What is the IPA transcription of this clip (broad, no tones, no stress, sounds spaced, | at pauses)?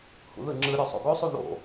h ṵ ð ɯ ŋ͡ǁ ɯ ɾʲ o sˤ o̰ ɡ o sˤ u ð o̰